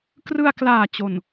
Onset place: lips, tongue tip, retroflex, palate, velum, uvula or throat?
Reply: velum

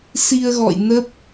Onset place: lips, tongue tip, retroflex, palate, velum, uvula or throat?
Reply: tongue tip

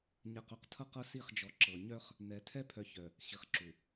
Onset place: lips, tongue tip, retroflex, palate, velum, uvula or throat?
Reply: palate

